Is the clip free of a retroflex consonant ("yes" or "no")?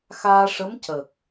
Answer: no